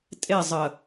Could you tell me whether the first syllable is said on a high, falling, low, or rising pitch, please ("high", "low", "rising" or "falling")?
falling